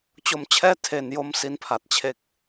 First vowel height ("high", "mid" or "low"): mid